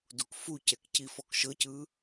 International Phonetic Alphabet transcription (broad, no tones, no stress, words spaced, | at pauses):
dukfucɛk cifɔkʃɤcɯ